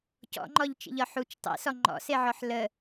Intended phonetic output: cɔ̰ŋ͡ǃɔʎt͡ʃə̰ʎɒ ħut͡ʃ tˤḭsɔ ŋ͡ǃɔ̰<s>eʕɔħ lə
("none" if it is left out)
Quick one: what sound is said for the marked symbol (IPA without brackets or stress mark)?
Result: s